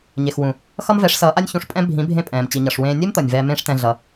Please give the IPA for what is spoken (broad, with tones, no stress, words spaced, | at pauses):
ɲe˨xwũ˨ | xʌ˦mvɛ˨˦ʂsʌː˨˦ʔa˦nʲ çũ˧ʂ pʼɛ̃˦ bʱĩ˨˦bʱẽ˧ pʼɛ̃ː˨m t͡ɕi˨ɲʌ˨ʂwẽː˧ nʲe˦mt̪ʌ˨nʲ vɛː˧mẽː˦ʂtɛ̃˧ ɮʌ˧